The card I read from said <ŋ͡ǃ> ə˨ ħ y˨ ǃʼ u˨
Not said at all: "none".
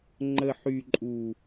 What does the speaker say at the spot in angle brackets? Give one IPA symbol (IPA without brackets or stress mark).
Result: ŋ͡ǃ